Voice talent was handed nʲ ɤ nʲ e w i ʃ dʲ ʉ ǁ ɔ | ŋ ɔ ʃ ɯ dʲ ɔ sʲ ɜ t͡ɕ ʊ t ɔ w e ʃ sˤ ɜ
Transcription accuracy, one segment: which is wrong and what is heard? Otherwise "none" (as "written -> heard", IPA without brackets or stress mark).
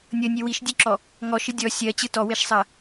ʊ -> ɯ